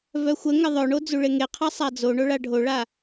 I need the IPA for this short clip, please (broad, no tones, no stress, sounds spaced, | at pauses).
v œ xʷ ə ŋ ə ðˤ œ ɳ o d͡z u ɭ e ŋ e qʰ a sˤ a d͡z o ɳ o ɭ a ɖʱ o ɭ a